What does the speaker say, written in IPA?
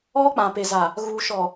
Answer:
ɔ˦k͡pã˨pe˨za˨ | ɣuː˨ʃɔ˨

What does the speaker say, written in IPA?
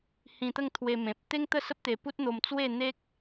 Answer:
hĩ˧t̪ə˥˧ŋt̪ʰwe˧ mẽ˨p̚ t̪e˦ŋt̪ə˥˧sə˦p̚t̪e˧ pu˦t̚n̪o˧m t͡swe˥˧ n̪e˦k̚

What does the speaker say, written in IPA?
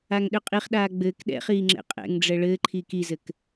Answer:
aŋɗøqʼiχɗaː ɡ͡bɘːk ɗɛ̰χiː ŋ͡ǁɛ̰qʼɛ̰ŋɖ͡ʐɛ ɭɘːǃʰiːk izɘk

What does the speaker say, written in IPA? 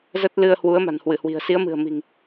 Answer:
zə˦˥t̚lɨ˧ə̯ hwu˨˦ə̯ma̤˨˩nhwɨ˧˩hwi̤˨˩ə̯ si˨˦ə̯mɨ̤˨˩ə̯mi̤˨˩ŋ

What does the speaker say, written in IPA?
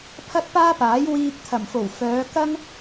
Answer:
pʰɐ˥t̚paː˥paː˨˥j wiː˧k̚ t̪ʰɐ˨˩mfo˨˩w fœː˨˧kɐ˥ŋ

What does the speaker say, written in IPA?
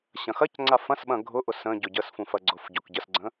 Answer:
ɕɐ̃xɐcŋ͡ǀa fɐ̃sɓɐ̃ ɡʱʊʔʊ sə̃ɟʊ ɟəsfũf ɐɡ͡ǀʊfɟʊk ɟəsɡ͡ǀə̃

